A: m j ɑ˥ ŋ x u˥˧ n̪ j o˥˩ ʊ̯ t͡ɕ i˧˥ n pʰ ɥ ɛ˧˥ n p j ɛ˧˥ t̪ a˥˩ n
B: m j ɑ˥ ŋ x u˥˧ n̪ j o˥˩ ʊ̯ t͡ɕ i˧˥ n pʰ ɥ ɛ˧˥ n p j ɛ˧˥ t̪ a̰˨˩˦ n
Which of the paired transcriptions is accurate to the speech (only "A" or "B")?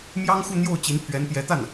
A